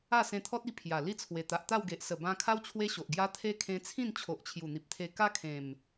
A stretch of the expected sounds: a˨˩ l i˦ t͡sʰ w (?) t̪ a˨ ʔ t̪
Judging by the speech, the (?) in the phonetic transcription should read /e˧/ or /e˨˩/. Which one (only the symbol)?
e˨˩